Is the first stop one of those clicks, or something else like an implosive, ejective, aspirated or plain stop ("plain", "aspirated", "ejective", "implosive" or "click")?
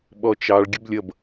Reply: implosive